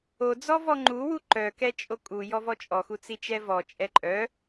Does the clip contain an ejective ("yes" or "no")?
yes